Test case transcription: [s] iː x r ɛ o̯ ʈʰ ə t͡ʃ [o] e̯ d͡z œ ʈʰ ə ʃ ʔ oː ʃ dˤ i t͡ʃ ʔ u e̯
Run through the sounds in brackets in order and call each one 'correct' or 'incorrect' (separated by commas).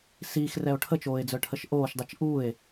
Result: correct, incorrect